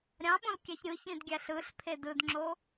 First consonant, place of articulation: alveolar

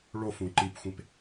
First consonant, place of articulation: retroflex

